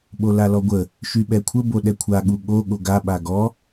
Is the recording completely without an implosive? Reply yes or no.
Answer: no